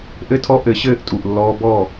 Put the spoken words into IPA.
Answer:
ʔ ɘ˦ tʰ ɔ˦ ʔ ɘ˨˦ ɕ ɘː˦ ʔ tʼ u˨ ʔ lː ɔː˦ b ɔ˦˨

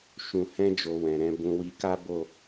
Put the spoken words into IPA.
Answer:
ʃ ũ˨ h ɛ̃˧ d͡ʒ o˨ w ɛ̃˨ ɾ ɛ̃˧ b ũ˧ w i˧ k a˦ b o˦˨

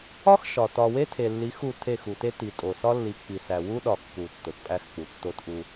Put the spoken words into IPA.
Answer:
ɒ˦ x ʃ ɒ˨ t ɒ˨ w e˦ tʰ e˨ lː i˨˦ x u˦˨ tʰ e˦˨ x u˨ t e˦ t i˨ tʼ o˨ s ɒ˦ lː i˨˦ k͡p i˨ s æ˨ w u˦ ɗ ɒ˨ kː u˨ tː o˨ t pʼ æ˦ x k͡p u˨ tː o˦ t ʔ u˦

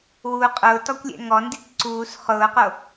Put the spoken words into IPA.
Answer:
w u qʼ ʊː t ɔ kʷ lʲ ɛ̰ ŋ ɔ n d i t ǀ uː s χ ʊː q o

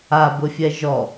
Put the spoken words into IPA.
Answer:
a b ʊ fʲ ɛ ʒ ɔ

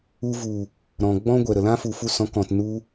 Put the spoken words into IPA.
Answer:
u˧ v u˨ | ɾ ɔ̃˨ ɡ͡b ɔ̃˦ ɡʷ ɛ˨ ɾ ə˨ l ã˦ f u˨ f u˧ s ɔ̃˨˦ k ɔ̃˨ t n u˧

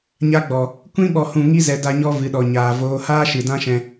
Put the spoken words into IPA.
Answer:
ɲ a˧ ɡ͡b ɔ˨ | kʷ ĩ˦ ɓ ɔ˨ h ũ˨ ŋ i˧ z ɛ˨ d a˧ ɲ ɔ˧ v ɨ˨ ɗ ɔ˨ ɲ aː˨ v oː˧ h aː˦ ʃ ɨ˨ d ã˦ ʃ ɛ̃˧

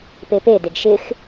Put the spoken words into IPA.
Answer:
p e p e d e ɡ ʃ ɪ x

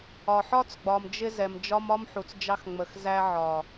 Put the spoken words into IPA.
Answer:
ɒ˨ ħ ɒ˦ t͡s ɡ͡b ɒ˨ m d͡ʒ ɪ˧ z ɛ˨ m d͡ʒ ɒ˦ m ɒ˦ m ħ u˨ t͡s d͡ʒ ɑ˧ x ŋ͡m ə˨ x z æ˧ ʕ ɒ˨

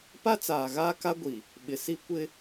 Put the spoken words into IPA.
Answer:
p a˦ t͡s aː˨ ɣ aː˦ k a˦ ɡʷ i˨ | ɓ ɪ˨ s i˦ kʷ ɪ˦

